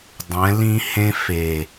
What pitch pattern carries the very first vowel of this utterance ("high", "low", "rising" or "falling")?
rising